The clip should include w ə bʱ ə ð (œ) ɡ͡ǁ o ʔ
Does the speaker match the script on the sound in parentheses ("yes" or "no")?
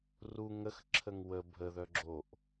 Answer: yes